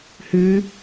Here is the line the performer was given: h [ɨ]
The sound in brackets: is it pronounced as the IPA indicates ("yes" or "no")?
yes